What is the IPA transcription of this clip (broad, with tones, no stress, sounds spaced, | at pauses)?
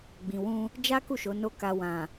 ɡ͡b ĩ˨ w ũ˧ | d͡ʒ a˦ k u˦˨ ʃ o˨˦ n o˦ k a˧ w ã˨